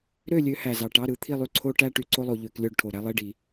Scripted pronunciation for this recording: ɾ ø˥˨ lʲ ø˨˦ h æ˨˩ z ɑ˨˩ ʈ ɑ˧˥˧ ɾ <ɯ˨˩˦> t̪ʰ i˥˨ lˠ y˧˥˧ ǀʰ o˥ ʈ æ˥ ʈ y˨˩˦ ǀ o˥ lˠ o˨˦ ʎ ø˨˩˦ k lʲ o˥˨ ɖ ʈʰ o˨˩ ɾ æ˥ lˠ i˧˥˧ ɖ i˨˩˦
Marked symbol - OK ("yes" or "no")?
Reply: yes